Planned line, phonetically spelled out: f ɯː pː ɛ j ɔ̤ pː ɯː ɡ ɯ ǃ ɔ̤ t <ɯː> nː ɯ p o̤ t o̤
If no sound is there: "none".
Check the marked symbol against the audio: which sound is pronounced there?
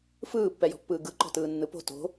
ɯː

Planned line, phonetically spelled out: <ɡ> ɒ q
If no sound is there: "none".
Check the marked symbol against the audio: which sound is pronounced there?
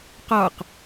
q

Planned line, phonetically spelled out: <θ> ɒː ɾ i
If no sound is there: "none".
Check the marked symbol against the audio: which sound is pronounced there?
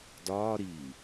d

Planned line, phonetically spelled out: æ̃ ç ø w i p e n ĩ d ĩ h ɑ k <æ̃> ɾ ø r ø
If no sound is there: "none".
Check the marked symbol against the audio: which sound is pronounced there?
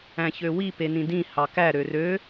æ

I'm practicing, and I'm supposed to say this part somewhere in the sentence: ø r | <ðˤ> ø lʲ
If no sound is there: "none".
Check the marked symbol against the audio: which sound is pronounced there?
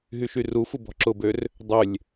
dˤ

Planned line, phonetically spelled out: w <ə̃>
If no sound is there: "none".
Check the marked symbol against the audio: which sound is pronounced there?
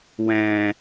ɛ̃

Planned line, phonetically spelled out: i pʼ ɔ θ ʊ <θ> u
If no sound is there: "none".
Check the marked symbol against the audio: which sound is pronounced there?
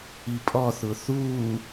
θ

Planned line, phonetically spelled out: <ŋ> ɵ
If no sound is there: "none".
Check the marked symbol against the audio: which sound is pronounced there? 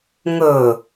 ŋ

